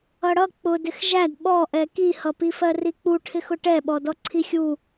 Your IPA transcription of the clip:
ʌɽʌ k͡pʊdɪx ʒæd ɓɔʔɛ kihʌpifɜ rik͡puʈʰɪxʊ ʈɛɓɔ dɔǀʰixʲu

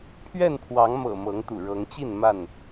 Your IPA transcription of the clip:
pʰɥɛ˥˨npʰwɑ˨˦ŋmɤ̰˨˩ mɤ˨˦ŋt̪ṵ˨˩ɻɤ˨˦ŋt͡ɕi˥˨n ma˥˨n

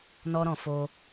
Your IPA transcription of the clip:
nɔ˦ɾɔ̃˧ fo˧

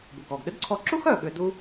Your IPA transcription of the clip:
bu˩kɔ˩ɡ ɗʏ˥dǀʰɔ˧ ǁu˥xœ˩ ɠʏ˧du˥

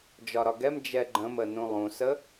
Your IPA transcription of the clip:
d͡ʒɒɾɒɡɛm d͡ʒɛɡ͡ǃə̃mənũ lˠũsə

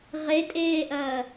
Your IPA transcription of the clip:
ʁetʼeːʔɐː

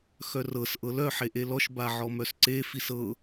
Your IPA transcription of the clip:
xœrɤs ʔɤlœ ħeʔelɔʃ baʕɔmœsǀe fisɤ

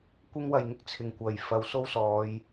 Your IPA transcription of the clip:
kʷɪ˥ŋwɐ˨jŋɪ˥k̚t͡sʰɪ˨˩ŋ kʷɐ˨˩j fɐ˨wso˥wsɔː˨˧j

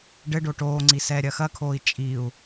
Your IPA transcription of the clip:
ɖɘɖo ʈoːŋ͡ǀi sɛːɾʲɐxɐkʰoːi̯ t͡ʃʼiu̯

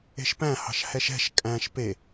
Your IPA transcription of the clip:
e̤ʃpæ̃ hɑ̤ʃhɛʃɛ̤ʃ kʼæ̃ʃ pe

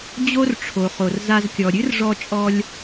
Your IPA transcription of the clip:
d͡ʑo˥rʈ͡ʂʰo˩χo˩r za˧zkʲɔ˩ ɾʲɨ˥rʐɔ˧t͡ʃʼɔ˧lʲ

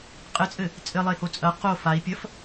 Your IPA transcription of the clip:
qʼɘt͡sʼɘ | t͡sʼɘlˠeho t͡sʼɐ qo fai̯pʲɐf

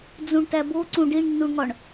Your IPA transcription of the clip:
d͡zũɳtæboǀũ ɖiɳnːuɳŋɒɳ

